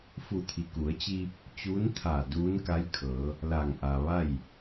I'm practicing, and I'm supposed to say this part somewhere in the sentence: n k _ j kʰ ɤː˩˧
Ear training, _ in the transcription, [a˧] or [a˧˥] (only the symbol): a˧˥